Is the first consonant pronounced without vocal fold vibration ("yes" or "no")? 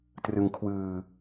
yes